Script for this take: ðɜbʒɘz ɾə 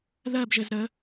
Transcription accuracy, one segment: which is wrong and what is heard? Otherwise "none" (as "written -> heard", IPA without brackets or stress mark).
none